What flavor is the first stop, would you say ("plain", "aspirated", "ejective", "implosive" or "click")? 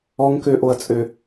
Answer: plain